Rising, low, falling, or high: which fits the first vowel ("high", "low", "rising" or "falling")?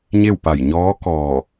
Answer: falling